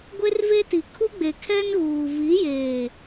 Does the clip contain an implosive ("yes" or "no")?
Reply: no